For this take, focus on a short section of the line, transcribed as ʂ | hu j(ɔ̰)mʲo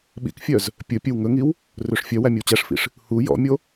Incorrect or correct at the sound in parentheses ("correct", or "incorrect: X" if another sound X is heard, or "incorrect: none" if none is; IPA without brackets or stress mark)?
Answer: correct